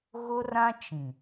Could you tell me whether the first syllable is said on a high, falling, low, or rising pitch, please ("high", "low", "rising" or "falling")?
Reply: high